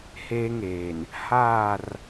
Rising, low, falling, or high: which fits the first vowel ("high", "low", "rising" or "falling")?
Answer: high